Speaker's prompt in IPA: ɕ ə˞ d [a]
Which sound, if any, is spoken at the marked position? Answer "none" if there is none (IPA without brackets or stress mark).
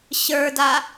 a